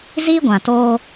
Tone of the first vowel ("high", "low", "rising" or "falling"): high